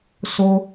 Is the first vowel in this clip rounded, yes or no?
yes